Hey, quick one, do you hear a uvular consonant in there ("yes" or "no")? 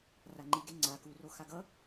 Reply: no